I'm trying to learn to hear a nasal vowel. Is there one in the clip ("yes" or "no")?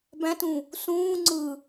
yes